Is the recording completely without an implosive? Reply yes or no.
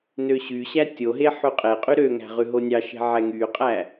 yes